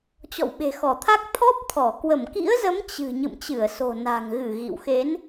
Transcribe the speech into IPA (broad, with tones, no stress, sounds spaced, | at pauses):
t͡ɕ ɔ̰˧˨ w ɓ e̤˨˩ x ɔ˧˩ t̪ʰ a˦˥ k̚ t̪ʰ ɔ˦˥ p̚ t̪ʰ ɔ˧˩ k w ə˧˩ m k ḭ˧˥ ə̯ z ə˨˦ m t͡ɕ ɨ̤˨˩ ɲ ɨ̰˧˨ m t͡ɕ ɨ˧˩ ə̯ s o̤˨˩ n a̤˨˩ ŋ ɣ ɨ˧˩ ɣ ḭ˧˨ w x e˨˦ n